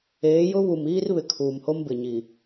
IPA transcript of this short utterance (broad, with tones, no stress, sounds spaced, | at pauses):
eː˨˦ j ʊ˦ β u˨ m iː˦ r β ɪ˨ kʰ uː˨ m h o˦ m b ɪ˨ ɲ i˨